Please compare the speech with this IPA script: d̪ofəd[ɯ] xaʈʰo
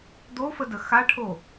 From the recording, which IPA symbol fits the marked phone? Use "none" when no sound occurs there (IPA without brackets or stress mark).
ə